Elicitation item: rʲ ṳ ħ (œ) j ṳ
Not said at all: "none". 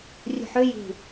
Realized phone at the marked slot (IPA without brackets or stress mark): ø